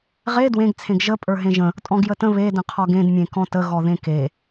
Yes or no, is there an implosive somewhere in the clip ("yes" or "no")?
no